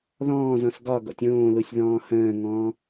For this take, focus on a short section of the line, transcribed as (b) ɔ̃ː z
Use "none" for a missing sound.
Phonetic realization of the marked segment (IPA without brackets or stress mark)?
ð